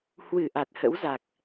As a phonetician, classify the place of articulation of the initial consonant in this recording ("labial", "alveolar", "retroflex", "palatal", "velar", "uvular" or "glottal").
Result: glottal